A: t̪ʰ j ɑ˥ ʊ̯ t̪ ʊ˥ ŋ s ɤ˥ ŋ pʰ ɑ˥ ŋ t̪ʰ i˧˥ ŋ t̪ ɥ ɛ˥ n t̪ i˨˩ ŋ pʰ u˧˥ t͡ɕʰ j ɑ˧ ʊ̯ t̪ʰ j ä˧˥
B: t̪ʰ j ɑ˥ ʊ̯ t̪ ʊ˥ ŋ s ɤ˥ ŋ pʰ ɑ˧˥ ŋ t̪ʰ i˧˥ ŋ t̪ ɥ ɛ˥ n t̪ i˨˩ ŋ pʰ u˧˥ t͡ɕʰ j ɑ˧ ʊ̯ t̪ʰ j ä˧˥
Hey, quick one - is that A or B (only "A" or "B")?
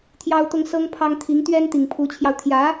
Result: A